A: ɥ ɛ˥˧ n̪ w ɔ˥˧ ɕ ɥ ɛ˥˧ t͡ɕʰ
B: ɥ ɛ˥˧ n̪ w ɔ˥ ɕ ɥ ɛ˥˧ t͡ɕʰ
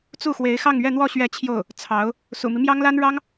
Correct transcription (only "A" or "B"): A